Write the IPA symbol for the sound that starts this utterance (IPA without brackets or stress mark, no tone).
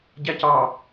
ɟ